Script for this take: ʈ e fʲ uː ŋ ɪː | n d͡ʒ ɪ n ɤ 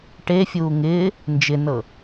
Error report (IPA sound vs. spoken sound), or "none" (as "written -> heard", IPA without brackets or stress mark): none